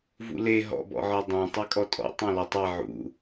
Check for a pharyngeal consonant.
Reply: present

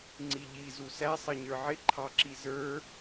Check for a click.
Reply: present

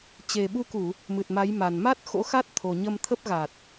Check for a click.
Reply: absent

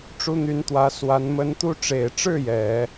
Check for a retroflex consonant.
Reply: present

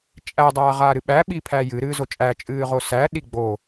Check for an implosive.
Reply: present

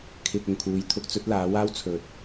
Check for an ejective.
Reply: absent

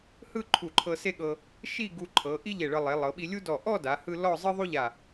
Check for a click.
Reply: present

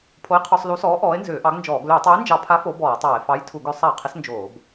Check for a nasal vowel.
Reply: absent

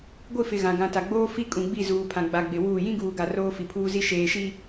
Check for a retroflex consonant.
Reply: absent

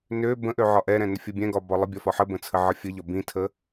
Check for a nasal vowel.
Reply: present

